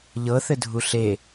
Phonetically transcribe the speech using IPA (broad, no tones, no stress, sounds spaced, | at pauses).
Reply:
ʎ ɤ θ ɘ dʱ u ɬ e